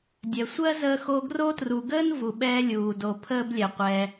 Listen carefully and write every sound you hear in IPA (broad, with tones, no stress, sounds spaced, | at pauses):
dʲ ɛ˩ sʷ ɜ˥ z əː˦ x o˦ ɡ r o˦ t r u˨ ɡ əː˥ n v u˩ ɓ ɛː˥ lʲ uː˩ d o˨ pʰ əː˥ b lʲ ɛ˩ qʷ ɛː˨